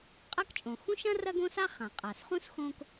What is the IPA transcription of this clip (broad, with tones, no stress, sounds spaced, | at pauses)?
qʼ ɐ˥ k t͡ʃʼ õ˩ x ũ˥ ʃ ɐ̃˥ r ɐ˥ ɡ õ˥ s a˥ χ ã˩ qʼ a˩ s χ ũ˥ s x õ˥ k